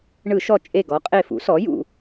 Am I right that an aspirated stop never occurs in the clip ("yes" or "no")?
yes